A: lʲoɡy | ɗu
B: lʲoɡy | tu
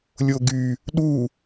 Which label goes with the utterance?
A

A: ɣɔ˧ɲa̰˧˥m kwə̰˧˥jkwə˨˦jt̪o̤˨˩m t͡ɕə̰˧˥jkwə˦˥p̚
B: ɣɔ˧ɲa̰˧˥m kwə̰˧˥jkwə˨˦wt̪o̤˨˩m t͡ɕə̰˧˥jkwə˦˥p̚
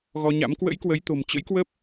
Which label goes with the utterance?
A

